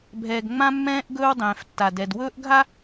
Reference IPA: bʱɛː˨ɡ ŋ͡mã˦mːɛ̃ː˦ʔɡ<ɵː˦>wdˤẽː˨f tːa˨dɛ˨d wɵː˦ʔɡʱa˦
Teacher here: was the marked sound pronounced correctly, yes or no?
yes